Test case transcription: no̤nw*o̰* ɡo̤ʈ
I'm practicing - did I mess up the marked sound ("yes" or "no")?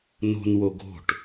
yes